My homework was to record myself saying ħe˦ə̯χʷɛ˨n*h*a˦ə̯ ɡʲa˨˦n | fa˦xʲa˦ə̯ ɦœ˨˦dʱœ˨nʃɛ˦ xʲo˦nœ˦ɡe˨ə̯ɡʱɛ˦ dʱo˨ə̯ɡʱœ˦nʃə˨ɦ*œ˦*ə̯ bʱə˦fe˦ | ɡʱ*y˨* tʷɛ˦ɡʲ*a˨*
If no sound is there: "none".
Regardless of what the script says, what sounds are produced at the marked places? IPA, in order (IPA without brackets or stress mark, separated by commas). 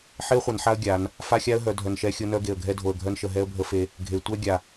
ħ, ɛ˦, e˨, a˨